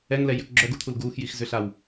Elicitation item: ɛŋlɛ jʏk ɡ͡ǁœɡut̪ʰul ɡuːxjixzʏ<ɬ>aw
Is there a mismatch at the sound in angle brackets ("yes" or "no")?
no